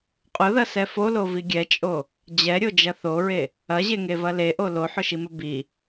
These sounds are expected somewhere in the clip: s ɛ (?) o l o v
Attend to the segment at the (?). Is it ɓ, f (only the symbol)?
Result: f